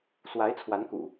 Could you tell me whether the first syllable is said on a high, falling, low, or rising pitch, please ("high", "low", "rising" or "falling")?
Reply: rising